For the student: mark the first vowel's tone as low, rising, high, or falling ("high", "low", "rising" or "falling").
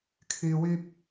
low